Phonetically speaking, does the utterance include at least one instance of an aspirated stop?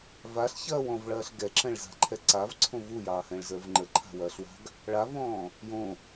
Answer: yes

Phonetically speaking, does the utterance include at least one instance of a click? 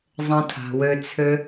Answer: no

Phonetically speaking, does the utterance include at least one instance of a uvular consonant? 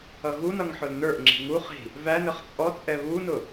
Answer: yes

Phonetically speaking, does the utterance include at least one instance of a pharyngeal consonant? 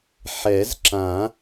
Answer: yes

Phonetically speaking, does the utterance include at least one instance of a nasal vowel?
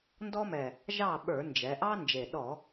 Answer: no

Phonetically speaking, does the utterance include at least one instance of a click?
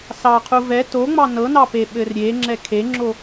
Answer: yes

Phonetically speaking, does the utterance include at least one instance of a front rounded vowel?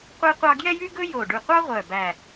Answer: yes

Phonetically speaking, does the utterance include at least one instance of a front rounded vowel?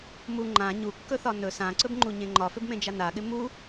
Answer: no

